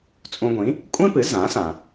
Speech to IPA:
t͡sʼ ũ˧ ɡʷ ĩ˩˥ | kʷʼ ẽ˥ p ɨ˩˥ z ã˩˥ s ã˩

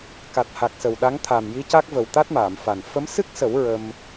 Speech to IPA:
k a˨˩ t̚ h a˨˩ k̚ s ə˨˩ w ɗ a˧˥ ŋ t̪ʰ aː˨˩ m j i˧˥ c a˦˥ k̚ v ə˨˩ w t̪ a˦˥ t̚ m aː˨˩˨ m f a˨˩ n f ə˧˥ m s ɨ˦˥ k̚ s ə˨˩˦ w ɹ ə˧ m

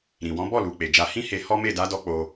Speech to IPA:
ɾ ĩ˨ w ɔ̃˨˦ b ɔ˦˨ l u˨ k͡p e˨ d͡ʒ a˧ h ĩ˦ h e˧ h ɔ˦ m e˦˨ d a˨˦ d ɔ˧ k͡p o˧

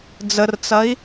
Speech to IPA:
d͡z ə r t͡s ɐ i̯

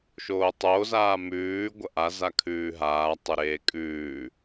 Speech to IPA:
ʃ oː tˤ o z aː m ʉː ɡʷ ɐ ʔ a z a kʰ ʉː ɦ aː tˤ ɵ ɾ eː kʼ ʉː

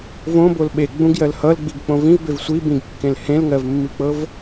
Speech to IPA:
v õ b o l ɓ e ɡ͡b ũ ɡ j ɜ l h ʌ l ɡ͡b i ɡ k͡p õ v ĩ v b e v sʷ i b ĩ ɡ kː ẽ l h ẽ l ŋ ɜ v mː i k͡p ɤ v

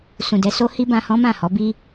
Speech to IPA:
s ũ˨ d ɛ˧ s o˦ h i˦ b ã˧ h ɔ̃˦ m ã˦˨ h ɔ˨˦ b i˦

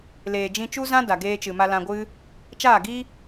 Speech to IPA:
l eː˨ d͡ʒ ĩ˧ t͡ʃ u˦ z ã˦ d a˨ ɡ eː˧ t͡ʃ ɨ˨ m a˧ l ã˧ ɡʷ ɨ˦ | t͡ʃ aː˦˨ ɡ i˦

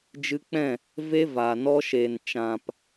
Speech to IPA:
d͡ʒ ɨ˧ k͡p ɛ̃˦˨ | v e˦ v aː˨ n ɔ˧ ʃ eː˨ n t͡ʃ ã˨ p

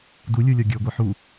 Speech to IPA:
d u lʲ u lʲ ɔ ɡʲ ə˞ ɡʷ ə˞ ħ u

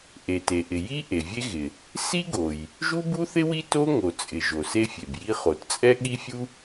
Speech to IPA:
ʔ e˩ t e˩ ʔ ɪ˩ j i˥ ʔ e˩ vʲ e˥ ɣ ɪ˩ | s i˥ ɡ o˩ j | ʒ u˥ b u˥ θ ɪ˥ w i˥ t o˥ ŋ o˩ t͡sʼ ɪ˩ ʒ o˩ s e˥ fʲ e˩ b j i˥ χ o˩ t t͡sʼ ɛ˥ ɠ i˥ fʲ u˥

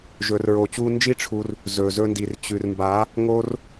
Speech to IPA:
ʒ ɵː˨ r ɹ oː˨ t͡ɕ uː˧ n d͡ʒ i˦ ʈ͡ʂʰ u˧ r | z ɵː˨ z ɵ˧ n d i˨ r t͡ɕ ʉ˨ r m b a˨˦ | ŋ oː˦ r

